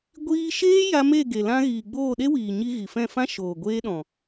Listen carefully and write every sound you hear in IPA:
ɡʷ iː˧ ʃ eː˦ j a˧ m e˦˨ ɡ e˨ l ã˧ ɣ i˨ ɡ͡b oː˦˨ ɗ e˦ w iː˨ ɲ i˧ ɣ i˨ f ɛ̃˦˨ f ã˦ ʃ oː˨ ɡʷ eː˧ ɗ ɔ̃˨

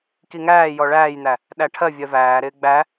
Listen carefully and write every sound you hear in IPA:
k i ŋ æː j ɔ ɭ æː j n̪ æ | ɗ æ ʈʰ ɜ vʲ ɜ v æː ɾ ɪː ɡ͡b æ

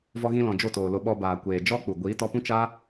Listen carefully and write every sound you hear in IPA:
v ɔ˧ ɣ ĩ˧ l ɔ̃˨ d͡ʒ o˦˨ t oː˨ l o˧ ɓ ɔ˧ b aː˨ kʷ eː˨ d͡ʒ ɔ˦ k͡p u˨ ɡʷ iː˨˦ t ɔ˧ p ũ˦ t͡ʃ a˦

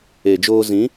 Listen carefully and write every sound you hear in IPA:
e˨ d͡ʒ oː˧ z ĩ˨˦

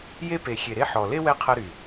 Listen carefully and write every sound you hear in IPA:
j e˦ p e˨ xʲ e˨ ɾ e˦ ħ ɔ˨ l e˦ w ɛ˧ qʰ ɐ˦ ɾ y˨

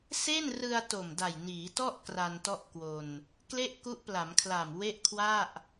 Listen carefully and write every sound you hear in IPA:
s e˥˩ n r ɯ˧ a̯ t o˨˩ m d a˨˩ j n iː˩˦ t ɔ˥˩ ʔ k r a˧ n t ɔ˥˩ ʔ k w o˧ n | k l e˥˩ ʔ k u˦˥ ʔ p l a˩˦ m kʰ l a˨˩ m w e˥˩ ʔ kʰ w a˥˩ ʔ

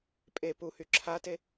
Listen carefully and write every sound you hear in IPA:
pʼ e p u h y ǁʰ a t e

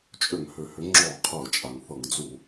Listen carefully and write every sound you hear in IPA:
t͡ʃʼ ʏ˧˩˧ ŋ h ʏ˩ h ʏ˨˦ ŋ͡ǁ ɔ˧˩˧ qʰ ɤ˧˩˧ t͡ʃʼ a˩ ŋ θ ɤ˧˩˧ ŋ d͡z u˧˩˧

